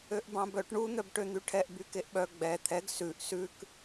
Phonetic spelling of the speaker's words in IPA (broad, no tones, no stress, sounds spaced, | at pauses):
ø ʔ b ɑ̃ b œ ʈ ɳ u n̪ œ b ʈ ø n̪ y ʈʰ ɛ ʔ b y k e ʔ ɓ œ ɡ͡b ɛ t̪ʰ ɛ ɡ s ʉ ʔ s ʉ k